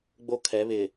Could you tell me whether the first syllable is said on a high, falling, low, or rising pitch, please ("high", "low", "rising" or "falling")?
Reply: high